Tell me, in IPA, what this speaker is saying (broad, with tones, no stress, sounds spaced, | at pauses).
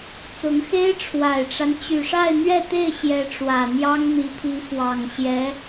t͡s ʊ˧˥ ŋ x e˥ ɪ̯ ʈ͡ʂʰ w a˨˩ ɪ̯ ʈ͡ʂ a˦ n t͡ɕ y˨˩ ʂ a˥˧ ɪ̯ n̪ ɥ ɛ˥˧ t̪ e˥˩ ɪ̯ ɕ j ɛ˧˥ ʈ͡ʂ w ä˨˩ n̪ j ɑ˥ ŋ n̪ i˧˥ pʰ i˧˥ f w ɑ˨˩ ŋ ɕ j ɛ˧˥